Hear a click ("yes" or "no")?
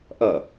no